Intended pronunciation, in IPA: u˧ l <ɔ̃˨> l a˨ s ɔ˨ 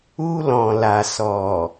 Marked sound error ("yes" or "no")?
no